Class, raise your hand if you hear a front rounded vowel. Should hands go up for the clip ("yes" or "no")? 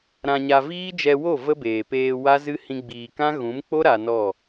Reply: no